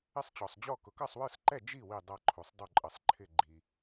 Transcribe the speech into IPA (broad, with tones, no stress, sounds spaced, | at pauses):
ɪ˥˩ sˤ t͡ɕ ɔ˨ sˤ d͡ʑ ɔ˥˩ k ʊ˨ k ʌ˥˩ sˤ w ə˞˥˩ s ǃ ɛ˥˩ d͡ʒ i˥˩ w i˥˩ dˤ ʌ˥˩ ǃʰ u˨ sˤ dˤ u˥˩ ǃʼ ə˨ sˤ ǃʰ ɪ˥˩ ɡ͡ǃ i˨